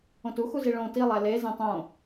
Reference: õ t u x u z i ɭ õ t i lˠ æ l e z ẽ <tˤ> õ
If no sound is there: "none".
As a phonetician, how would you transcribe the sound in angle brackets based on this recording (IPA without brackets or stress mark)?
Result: tˤ